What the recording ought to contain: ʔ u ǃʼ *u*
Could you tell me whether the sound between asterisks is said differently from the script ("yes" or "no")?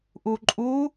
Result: no